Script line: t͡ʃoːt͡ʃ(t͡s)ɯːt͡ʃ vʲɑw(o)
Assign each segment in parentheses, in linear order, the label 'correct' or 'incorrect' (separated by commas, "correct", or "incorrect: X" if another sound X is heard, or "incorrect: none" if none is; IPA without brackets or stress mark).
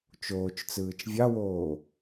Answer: correct, incorrect: oː